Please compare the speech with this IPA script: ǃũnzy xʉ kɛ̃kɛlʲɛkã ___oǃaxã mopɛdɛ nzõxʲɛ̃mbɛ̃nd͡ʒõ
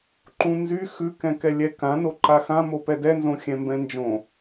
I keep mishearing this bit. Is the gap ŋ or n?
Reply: n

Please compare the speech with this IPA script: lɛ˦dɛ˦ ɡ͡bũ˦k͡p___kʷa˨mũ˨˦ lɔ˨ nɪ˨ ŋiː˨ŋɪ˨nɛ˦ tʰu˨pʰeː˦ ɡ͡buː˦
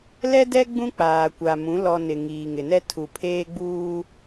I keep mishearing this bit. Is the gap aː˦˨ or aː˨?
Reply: aː˨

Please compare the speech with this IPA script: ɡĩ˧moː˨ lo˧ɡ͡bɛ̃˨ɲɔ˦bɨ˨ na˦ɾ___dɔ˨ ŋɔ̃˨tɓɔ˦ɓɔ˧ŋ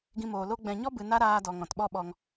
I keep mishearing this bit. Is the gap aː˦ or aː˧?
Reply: aː˧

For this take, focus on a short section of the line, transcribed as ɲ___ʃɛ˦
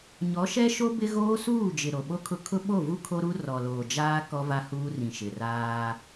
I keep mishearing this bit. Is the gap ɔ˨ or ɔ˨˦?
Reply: ɔ˨˦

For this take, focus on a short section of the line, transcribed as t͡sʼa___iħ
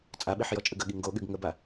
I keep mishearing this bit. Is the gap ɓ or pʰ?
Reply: ɓ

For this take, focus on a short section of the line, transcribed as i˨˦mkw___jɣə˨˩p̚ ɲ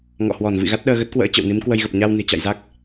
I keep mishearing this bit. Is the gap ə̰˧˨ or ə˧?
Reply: ə˧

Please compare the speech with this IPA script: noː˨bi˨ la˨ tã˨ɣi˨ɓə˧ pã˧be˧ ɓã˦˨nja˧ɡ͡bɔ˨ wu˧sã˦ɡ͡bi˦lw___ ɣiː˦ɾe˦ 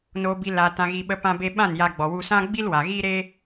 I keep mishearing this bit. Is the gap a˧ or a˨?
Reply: a˨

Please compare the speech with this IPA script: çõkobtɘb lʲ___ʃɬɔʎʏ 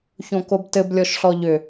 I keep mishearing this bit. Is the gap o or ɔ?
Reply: ɔ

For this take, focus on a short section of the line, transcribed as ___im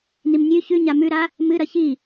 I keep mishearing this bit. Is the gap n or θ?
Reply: n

